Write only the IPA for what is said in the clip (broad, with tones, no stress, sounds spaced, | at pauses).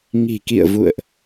ŋ i̤˨˩ k ḭ˧˨ ə̯ v ṵ˧˨ ə̯ ʔ